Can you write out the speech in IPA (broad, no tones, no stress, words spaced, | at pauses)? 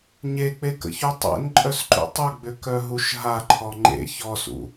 ɲek͡pekə̰çu tˤḛnǃʼœsǃṵ tˤʏɡ͡bʏkœɦuʃ ɦaǃʰɔ ŋ͡ǃḛ çɔsṵ